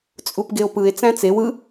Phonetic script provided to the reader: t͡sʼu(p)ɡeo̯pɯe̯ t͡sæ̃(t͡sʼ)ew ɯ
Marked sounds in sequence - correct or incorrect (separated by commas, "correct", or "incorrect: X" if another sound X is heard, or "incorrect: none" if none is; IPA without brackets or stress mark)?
correct, incorrect: t͡s